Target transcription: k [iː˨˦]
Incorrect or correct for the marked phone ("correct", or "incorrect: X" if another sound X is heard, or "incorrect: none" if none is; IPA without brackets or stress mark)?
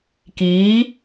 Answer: correct